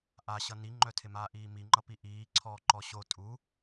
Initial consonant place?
glottal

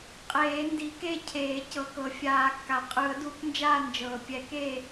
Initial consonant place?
uvular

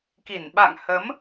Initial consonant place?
velar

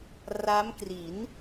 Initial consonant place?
alveolar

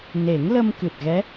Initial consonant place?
alveolar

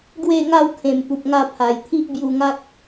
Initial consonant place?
velar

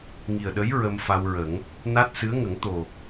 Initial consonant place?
velar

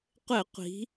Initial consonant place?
uvular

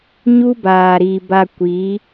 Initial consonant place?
palatal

